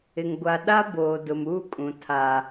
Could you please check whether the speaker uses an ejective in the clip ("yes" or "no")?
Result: yes